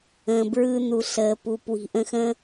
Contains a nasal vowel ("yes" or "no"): yes